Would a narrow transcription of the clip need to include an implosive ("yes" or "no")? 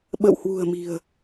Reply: yes